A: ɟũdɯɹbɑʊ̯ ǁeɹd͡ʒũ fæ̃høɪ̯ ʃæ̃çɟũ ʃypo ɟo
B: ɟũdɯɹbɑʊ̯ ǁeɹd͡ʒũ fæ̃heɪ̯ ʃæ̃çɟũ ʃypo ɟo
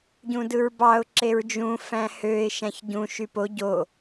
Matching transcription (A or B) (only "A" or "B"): A